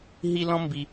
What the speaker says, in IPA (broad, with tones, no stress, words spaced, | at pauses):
ɦi˥ lɔ̃˥mbi˧